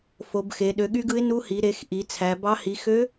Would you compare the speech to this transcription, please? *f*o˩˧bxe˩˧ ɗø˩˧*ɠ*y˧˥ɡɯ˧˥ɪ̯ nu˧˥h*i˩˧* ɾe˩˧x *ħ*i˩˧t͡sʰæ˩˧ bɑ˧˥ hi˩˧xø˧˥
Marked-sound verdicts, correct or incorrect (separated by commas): correct, correct, correct, incorrect